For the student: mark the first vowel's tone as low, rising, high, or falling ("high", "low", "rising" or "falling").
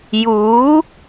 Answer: rising